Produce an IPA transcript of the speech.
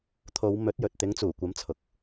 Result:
t̪ʰo˨˧w mɵ˨˥t̚jɵ˨t̚ t̪ɪ˨˥ŋt͡suː˨˩kʷɐ˨˥mt͡sʰʊ˨k̚

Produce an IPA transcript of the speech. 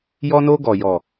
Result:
jɔ˦no˦ɡɔ˨ jɔ˨

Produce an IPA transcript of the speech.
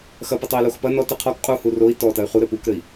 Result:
xɐpətˤoi̯lox pɐ nɔtɘ qʰɔk qʼuhu roi̯ tɔtɐy̯ χuɾɘ pukɾɘi̯

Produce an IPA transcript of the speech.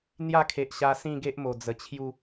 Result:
n̪ja˥˧kʰe˨ʔɕa˧ sĩ˥˧ɡe˦ʔ mo˨˩d͡zə˨˩t͡ɕʰju˥˧

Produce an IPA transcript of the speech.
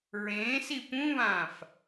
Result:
ɹẽːsi pũβãːf

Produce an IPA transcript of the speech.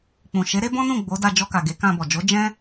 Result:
k͡pũ˨ʃe˨˦ ɾe˦bɔ̃˦nũ˦˨ ɡ͡bo˨˦da˧ d͡ʒɔ˧ka˨ɡe˨˦ kã˧bɔ˨ d͡ʒo˨˦ d͡ʒɛ̃˦

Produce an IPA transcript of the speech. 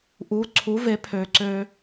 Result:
ʔuː˩˥ǀʰu˩˥ve˩˥ pʰøː˧ǀøː˥

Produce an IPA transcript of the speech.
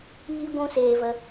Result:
iː˦ɡʷũ˦seː˧və˧

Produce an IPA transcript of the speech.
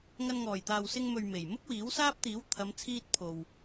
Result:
ŋɐ˧n ŋɔː˨˩jt̪aː˨wsɪ˧ŋ mɵ˨ɥ me˨˩j mʊ˥k̚wiː˨˥wsaː˥p̚ t̪iː˨˥wt̪ʰɐ˨˧mt͡sʰiː˧t̚ pʰo˨w

